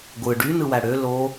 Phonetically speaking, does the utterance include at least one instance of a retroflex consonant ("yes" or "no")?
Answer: yes